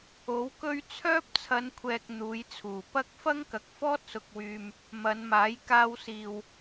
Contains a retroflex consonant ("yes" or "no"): no